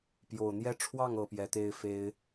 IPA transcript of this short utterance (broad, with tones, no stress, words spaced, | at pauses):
pjo˨˩ʊ̯n̪jɛ˥ ʈ͡ʂʰwɑ˥˩ŋɤ˨˩ pjɛ˧˥t̪e˥ɪ̯ fe˥ɪ̯